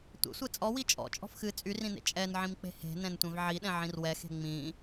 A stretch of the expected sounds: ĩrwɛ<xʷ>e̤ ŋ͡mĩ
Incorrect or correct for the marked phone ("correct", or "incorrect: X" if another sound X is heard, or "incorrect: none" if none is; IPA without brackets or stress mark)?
incorrect: x